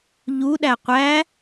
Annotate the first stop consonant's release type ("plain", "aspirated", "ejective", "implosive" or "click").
implosive